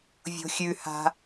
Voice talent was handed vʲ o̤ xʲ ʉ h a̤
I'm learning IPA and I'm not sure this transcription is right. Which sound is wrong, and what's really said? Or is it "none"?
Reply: none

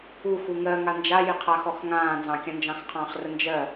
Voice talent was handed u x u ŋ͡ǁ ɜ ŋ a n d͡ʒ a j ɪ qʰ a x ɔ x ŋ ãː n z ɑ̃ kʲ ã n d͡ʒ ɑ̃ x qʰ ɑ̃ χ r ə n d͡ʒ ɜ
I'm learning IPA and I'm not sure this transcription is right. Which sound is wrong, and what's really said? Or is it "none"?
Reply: ŋ͡ǁ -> ŋ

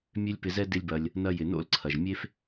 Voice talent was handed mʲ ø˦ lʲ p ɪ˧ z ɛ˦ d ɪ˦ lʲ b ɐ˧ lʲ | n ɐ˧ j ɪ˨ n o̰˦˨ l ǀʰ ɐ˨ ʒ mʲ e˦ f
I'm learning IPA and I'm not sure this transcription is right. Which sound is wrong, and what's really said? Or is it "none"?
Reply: none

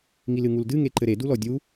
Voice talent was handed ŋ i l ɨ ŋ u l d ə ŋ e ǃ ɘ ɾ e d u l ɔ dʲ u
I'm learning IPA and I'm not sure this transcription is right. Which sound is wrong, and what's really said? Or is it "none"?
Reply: ə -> ɨ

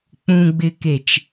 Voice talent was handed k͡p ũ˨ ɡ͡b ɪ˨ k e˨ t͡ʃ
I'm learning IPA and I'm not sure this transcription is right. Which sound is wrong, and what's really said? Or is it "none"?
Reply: none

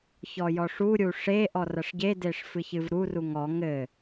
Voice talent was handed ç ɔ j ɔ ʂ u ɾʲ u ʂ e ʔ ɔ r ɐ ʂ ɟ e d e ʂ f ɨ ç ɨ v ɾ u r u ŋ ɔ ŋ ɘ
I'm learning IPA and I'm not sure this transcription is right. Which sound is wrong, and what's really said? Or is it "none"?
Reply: none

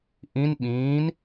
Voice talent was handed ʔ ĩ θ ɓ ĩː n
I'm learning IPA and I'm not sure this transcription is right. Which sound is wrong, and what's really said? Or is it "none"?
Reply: θ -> n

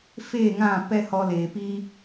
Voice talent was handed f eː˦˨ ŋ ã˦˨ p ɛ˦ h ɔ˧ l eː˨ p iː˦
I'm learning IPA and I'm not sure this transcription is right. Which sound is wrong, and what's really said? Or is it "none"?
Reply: none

